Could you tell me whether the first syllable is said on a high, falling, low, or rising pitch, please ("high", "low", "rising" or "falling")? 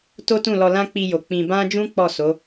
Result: high